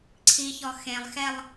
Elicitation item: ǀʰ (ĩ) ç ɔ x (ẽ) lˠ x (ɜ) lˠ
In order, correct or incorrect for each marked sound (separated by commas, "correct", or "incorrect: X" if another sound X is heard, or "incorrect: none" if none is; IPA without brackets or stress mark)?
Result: incorrect: i, correct, incorrect: ɛ